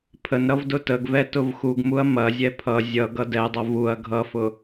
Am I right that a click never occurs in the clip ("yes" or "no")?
yes